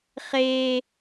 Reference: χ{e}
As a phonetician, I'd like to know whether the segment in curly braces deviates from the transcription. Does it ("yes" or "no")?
no